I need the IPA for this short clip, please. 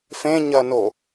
f ẽ ɲ ɐ n o

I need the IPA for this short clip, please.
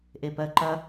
ʔ e p ɜ ǃ ɐ

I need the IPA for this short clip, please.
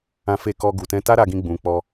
ã˧ f e˧ k ɔ˧ ɡ u˨ t ɛ̃˧ t a˦ ɾ a˦ ɡ ĩ˦ ɡ͡b ũ˧ k͡p ɔ˧

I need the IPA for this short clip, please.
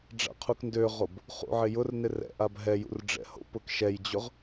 ɖ͡ʐ a̰ qʰ u k n d ø ʁ o b | χ ṵ ʕ ɪ j ʊ r n ɪ r ɛ̰ ʔ a b ɦ ɛ j ṵ r ɖ͡ʐ ɛ̰ h o̰ p ʊ k ʃ ɛ j d͡ʑ ʊ ʁ

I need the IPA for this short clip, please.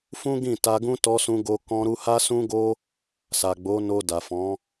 f ũ˦ ɡ ĩ˦˨ t a˧ ɡ ũ˦ t ɔ˧ s ũ˧ ɡ o˧ k ɔ̃˧ ɾ u˧ h a˦ s ũ˦ ɡ o˦ | s a˨ ɡ͡b o˨˦ n o˧ d a˨ f ɔ̃˨˦

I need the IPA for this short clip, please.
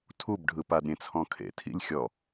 tʰ u b ɖʱ ɯ p a d ɾʲ ẽ t͡sʰ ɔ̃ kʰ ḛ tʰ ḭ lʲ xʲ ɔ

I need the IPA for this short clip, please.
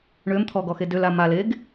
ɳ ø m t̪ʰ ɔ ɡ ɔ x e d ø l a m a l e ɡ

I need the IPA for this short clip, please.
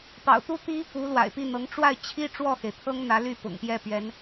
p ɑ̰˨˩ ʊ̯ t̪ u˥ t̪ i˥ | u˧˥ l w a̰˨˩ ɪ̯ p i˥˩ n̪ ɤ˧˥ ŋ ʈ͡ʂ w a˥˩ ɪ̯ t͡ɕʰ i˥ ʈ͡ʂ w ɔ˥˩ x e˩ ɪ̯ t̪ʰ ɤ˥ ŋ n̪ ä˧˥ l y˥˩ p ʊ̰˨˩ ŋ p j ɛ˥˩ p ɥ ɛ˧˥ n

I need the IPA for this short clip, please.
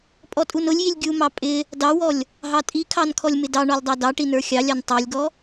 pʼ ɔ tʼ u n ʊ lʲ j i lʲ ɡʲ u m ɑ pʼ ɪ | d ɑ w ɔ lʲ | ɦ ɑ tʼ i kʰ ɑ n kʰ ɔ lʲ m ɪ d ɑ ɳ ɔ lʲ dˤ ɑ d ɑ ʈ i n ə˞ xʲ ɑ lʲ ɑ n tˤ ɑ lʲ ɡ ɔ

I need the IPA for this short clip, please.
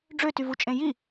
ɖ͡ʐ ø t y v u t͡ʃʼ ẽ j i

